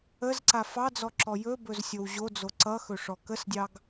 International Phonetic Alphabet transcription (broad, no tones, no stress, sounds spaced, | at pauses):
ə z ǀ a f ɑ d͡z ɔ ǁ ɔ j ɵ b ɵ z sʲ o w ʑ o d͡z o ǀ ʌ x ɵ ʂ ɔ k ə s dʲ ɑ ɡ